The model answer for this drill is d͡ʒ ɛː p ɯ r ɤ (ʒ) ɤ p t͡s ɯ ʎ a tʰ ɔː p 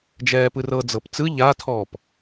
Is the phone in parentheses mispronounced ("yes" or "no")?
yes